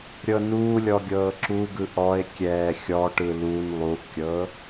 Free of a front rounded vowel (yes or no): yes